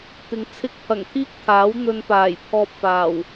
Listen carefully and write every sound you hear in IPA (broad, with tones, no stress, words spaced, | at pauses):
t̪ɪ˨ŋ t͡sʰɪ˧k̚pʰɐ˨˩ŋt̪ʰiː˥k̚ t̪ʰaː˨˥w n̪ɵ˧npaː˨˩j pʰɔː˧p̚faː˨˩w